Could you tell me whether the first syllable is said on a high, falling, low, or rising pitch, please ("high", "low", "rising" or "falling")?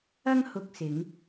high